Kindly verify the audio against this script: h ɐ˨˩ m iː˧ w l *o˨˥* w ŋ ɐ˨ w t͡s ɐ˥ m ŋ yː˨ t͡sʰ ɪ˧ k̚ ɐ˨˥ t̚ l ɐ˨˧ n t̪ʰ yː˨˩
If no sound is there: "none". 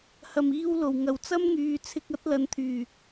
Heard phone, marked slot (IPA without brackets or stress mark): o˨˩